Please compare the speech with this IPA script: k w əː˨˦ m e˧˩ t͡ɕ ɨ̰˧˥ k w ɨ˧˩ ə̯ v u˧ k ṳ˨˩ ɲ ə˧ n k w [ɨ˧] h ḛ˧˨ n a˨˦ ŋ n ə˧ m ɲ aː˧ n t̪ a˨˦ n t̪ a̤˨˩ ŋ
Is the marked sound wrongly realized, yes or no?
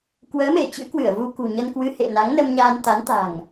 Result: no